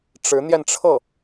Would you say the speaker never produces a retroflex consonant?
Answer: no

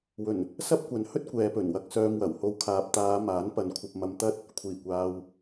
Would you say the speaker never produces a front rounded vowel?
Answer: no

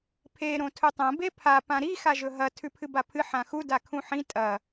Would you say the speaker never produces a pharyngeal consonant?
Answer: no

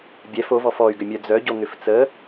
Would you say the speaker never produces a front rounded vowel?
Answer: no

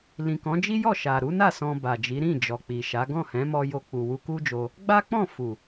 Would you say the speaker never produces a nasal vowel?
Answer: no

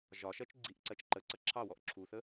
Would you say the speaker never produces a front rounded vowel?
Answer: yes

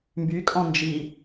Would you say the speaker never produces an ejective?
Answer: no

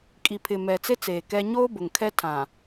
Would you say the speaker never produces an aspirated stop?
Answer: no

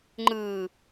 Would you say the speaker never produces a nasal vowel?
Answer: yes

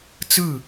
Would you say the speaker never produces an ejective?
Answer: yes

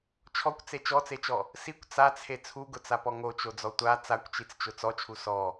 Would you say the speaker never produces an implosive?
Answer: yes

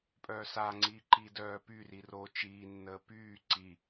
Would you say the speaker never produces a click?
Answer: no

